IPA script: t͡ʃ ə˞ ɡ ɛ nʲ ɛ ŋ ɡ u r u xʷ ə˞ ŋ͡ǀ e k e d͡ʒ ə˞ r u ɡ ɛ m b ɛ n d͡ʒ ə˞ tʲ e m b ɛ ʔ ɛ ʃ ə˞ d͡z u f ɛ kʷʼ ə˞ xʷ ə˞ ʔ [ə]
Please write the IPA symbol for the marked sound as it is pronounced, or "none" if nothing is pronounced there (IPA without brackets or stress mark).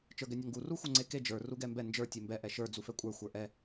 ɛ